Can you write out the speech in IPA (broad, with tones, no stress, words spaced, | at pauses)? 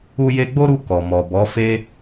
u˧je˧ɡ͡bo˦ɾu˧ kɔ˨mɔ˨ bɔ˨˦ fe˦